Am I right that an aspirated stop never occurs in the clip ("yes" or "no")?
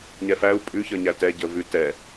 yes